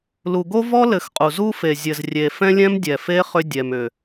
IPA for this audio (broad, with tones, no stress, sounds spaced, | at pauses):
l u˨ ɡ o˦ v ɔ˦ l ɘ˨˦ x qʼ u˨ z u˧ f e˨ zʲ ɘ˨ z rʲ e˨ f ɛ̃˧ lʲ ɛ̃˦ m dʲ ɛ˨ f e˦ χ ʏ˧ dʲ ɛ˨ m ʏ˨